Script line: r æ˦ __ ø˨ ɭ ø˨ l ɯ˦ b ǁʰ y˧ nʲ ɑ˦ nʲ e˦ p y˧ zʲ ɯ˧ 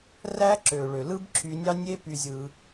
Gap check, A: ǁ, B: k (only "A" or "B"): A